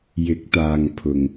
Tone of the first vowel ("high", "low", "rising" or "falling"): rising